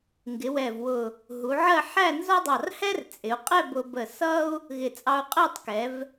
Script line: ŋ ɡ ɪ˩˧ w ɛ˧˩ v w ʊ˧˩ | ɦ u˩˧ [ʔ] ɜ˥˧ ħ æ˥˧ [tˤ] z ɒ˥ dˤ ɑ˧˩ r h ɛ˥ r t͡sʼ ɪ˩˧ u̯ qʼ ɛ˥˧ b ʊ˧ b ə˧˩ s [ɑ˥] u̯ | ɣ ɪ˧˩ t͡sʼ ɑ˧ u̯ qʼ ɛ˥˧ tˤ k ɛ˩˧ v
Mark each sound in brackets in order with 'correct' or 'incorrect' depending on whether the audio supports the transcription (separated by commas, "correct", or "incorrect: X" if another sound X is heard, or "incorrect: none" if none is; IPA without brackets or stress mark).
incorrect: ʕ, incorrect: n, incorrect: ʌ˥